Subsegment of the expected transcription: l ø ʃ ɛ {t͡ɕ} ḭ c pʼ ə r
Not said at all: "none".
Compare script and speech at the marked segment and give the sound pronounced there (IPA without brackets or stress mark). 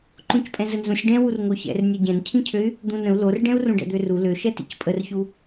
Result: t